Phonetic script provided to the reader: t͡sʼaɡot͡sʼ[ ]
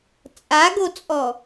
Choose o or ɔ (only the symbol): ɔ